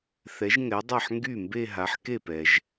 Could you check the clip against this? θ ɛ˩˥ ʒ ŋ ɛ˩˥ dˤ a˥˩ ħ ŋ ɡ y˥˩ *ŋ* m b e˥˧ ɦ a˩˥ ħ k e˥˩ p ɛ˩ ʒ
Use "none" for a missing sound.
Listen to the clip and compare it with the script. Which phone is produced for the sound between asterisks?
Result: none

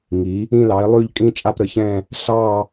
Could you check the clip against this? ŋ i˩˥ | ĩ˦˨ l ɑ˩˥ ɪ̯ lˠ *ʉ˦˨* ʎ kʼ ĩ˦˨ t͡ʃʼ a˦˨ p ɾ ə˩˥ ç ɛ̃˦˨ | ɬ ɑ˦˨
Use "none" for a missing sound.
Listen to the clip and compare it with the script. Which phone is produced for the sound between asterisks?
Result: ʉ˦˨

